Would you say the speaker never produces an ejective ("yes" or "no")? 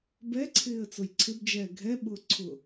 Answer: yes